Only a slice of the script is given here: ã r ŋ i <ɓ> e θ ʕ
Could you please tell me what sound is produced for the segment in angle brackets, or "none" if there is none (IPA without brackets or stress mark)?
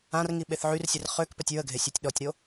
ɓ